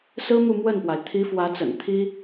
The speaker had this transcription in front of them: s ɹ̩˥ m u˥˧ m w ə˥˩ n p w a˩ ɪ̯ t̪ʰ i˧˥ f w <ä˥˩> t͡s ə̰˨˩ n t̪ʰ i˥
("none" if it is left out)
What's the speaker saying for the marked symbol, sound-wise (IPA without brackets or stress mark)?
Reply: ä˧˥